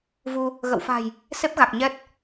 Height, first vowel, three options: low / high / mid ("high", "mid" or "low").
high